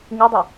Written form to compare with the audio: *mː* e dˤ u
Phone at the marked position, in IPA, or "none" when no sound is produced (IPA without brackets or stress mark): ŋ